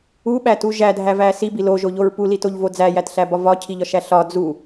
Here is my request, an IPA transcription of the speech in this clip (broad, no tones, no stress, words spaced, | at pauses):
uɓætu ʒædʱævæ sibi loʒoʎoɹ pulitoʎvo d͡zæjætɬæbɒ vɒcʰiʎɒʃæ ɬɒ d͡zu